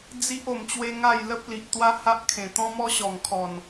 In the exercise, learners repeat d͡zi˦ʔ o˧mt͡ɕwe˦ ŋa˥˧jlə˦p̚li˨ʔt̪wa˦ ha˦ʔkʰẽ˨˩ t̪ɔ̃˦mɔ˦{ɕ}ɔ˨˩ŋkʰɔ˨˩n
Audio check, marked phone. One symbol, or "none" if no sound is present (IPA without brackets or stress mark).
ɕ